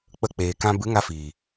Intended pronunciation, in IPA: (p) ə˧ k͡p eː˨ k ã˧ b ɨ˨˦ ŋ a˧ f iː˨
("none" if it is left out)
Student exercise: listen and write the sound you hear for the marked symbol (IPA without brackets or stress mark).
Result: k͡p